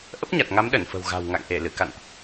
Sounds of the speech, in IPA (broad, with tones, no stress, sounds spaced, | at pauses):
ʔ ə˦˥ p̚ ɲ a˨˩ t̚ ŋ a˨˦ m ɗ ə˧˩ n f ə̤˨˩ w ɣ a̤˨˩ w ŋ a̰˧˨ ŋ ʔ e˧˩ l ɨ˧˩ k a̰˧˨ n ʔ